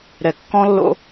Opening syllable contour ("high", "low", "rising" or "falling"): low